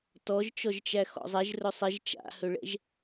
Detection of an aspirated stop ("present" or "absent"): absent